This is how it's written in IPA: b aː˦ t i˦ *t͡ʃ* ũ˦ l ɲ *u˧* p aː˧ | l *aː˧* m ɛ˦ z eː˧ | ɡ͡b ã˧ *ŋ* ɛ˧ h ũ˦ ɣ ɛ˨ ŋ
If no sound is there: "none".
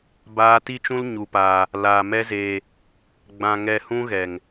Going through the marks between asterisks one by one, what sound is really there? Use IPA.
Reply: t͡ʃ, u˧, aː˧, ŋ

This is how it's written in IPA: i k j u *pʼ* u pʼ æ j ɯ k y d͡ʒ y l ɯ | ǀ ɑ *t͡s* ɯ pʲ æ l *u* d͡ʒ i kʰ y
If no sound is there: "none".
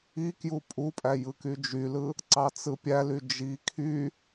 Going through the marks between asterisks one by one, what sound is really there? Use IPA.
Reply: pʼ, t͡s, y

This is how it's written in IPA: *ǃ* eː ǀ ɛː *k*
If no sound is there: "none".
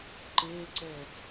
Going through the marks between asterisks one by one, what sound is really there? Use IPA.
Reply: ǃ, k

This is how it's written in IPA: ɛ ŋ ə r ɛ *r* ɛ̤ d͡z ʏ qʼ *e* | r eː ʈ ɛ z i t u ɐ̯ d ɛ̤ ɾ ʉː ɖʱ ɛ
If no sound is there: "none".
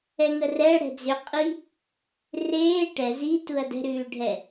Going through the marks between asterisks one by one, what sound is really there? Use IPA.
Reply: ɽ, i

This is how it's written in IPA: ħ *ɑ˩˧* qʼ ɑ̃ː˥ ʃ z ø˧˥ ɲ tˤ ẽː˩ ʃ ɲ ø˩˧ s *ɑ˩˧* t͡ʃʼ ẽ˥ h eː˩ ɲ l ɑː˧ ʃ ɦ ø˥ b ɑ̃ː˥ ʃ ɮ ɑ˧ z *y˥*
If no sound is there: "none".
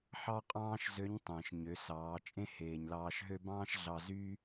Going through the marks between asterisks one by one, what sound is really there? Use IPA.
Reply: ɑ˥, ɑː˩˧, yː˥

